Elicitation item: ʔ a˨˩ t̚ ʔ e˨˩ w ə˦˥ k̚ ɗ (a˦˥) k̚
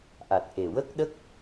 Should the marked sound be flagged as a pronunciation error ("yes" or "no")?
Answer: yes